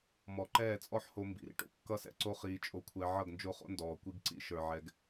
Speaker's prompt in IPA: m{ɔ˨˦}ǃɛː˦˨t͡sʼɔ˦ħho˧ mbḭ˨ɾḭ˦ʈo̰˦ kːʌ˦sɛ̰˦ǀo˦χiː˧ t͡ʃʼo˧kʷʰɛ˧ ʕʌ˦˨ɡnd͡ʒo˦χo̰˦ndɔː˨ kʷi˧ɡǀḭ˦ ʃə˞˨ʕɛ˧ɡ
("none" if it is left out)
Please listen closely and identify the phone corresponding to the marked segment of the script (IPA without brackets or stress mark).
ɔ˨˦